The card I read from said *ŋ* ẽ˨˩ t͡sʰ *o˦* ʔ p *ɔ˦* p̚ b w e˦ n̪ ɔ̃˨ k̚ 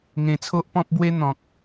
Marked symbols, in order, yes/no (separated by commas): yes, yes, no